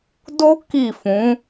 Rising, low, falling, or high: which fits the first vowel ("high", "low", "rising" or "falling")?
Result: high